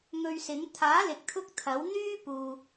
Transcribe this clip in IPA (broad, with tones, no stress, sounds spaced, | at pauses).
ŋ ɵ˧ ɥ s ɪ˨˥ ŋ t̪ʰ aː˨˥ l ɪ˨ k̚ t̪ʰ ʊ˥ k̚ t̪ʰ ɐ˨˥ w n̪ yː˥ p uː˨